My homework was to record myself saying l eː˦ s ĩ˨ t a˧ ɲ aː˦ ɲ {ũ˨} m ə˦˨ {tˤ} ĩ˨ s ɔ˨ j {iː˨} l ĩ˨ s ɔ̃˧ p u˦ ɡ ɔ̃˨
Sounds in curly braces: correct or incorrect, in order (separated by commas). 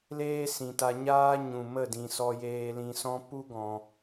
correct, incorrect, incorrect